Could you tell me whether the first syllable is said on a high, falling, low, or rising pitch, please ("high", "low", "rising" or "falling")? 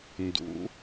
rising